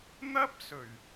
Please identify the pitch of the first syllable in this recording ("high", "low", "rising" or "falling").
high